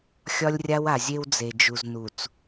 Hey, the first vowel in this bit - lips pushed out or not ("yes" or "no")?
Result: yes